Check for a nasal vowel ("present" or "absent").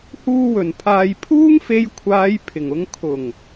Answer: absent